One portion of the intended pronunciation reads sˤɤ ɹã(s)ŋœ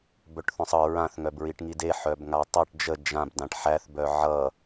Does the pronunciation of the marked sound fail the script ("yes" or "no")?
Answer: yes